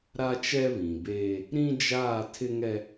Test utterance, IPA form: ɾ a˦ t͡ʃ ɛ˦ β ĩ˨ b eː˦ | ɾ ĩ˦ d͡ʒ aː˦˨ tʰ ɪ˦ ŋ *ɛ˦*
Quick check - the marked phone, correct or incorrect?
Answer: correct